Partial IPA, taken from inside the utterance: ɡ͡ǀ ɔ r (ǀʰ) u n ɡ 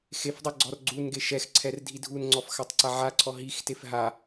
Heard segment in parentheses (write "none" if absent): ɡ͡ǀ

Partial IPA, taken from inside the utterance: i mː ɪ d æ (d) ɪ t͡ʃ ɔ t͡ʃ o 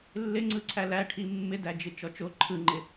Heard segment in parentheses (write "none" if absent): d͡ʒ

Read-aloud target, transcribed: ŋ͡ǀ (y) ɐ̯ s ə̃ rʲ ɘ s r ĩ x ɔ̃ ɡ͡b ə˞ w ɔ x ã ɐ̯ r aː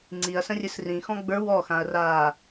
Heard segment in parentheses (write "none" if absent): i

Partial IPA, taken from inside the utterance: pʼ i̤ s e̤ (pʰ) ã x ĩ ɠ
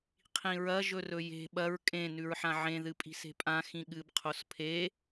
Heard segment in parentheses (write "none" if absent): pʼ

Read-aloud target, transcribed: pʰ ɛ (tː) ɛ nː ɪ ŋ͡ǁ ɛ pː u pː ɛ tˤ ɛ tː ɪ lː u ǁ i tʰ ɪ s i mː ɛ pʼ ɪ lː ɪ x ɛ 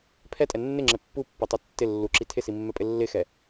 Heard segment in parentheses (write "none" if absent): tʼ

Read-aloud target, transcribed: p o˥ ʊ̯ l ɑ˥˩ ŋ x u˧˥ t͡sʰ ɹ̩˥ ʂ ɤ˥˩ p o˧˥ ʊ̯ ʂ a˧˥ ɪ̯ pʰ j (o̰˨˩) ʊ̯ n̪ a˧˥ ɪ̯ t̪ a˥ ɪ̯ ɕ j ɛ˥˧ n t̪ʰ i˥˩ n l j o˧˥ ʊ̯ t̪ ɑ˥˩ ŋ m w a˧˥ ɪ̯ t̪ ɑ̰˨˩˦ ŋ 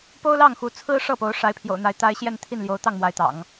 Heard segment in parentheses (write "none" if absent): o̰˨˩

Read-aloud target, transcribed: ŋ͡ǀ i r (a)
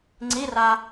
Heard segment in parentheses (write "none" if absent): a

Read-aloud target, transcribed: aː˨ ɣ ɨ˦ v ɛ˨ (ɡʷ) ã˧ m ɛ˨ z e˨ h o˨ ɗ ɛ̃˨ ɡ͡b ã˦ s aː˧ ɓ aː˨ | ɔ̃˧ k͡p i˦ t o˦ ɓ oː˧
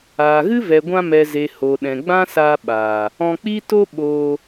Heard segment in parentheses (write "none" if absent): ɡʷ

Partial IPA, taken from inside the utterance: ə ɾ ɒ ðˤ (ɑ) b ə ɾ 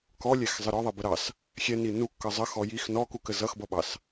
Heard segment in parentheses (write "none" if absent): ʌ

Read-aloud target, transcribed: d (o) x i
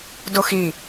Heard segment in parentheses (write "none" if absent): o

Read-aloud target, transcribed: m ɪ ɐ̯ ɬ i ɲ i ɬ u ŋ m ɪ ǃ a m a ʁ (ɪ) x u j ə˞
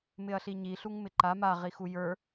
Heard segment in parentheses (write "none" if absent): i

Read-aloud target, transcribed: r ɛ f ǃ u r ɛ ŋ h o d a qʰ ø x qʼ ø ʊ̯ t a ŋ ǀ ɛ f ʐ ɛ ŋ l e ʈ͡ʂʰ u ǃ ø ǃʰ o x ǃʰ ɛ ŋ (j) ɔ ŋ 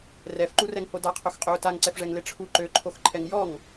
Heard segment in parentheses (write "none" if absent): j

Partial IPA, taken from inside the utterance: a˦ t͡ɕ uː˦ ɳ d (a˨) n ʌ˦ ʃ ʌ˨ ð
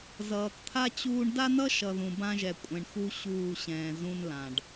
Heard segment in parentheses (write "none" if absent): a˦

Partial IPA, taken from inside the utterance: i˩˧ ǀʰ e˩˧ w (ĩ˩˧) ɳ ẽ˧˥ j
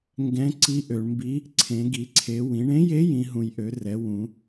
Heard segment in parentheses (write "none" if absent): ĩ˩˧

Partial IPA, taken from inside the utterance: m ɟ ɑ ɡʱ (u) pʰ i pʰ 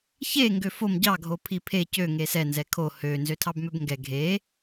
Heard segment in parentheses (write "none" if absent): o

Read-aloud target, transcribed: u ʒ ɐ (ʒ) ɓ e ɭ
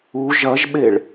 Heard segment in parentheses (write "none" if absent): ʒ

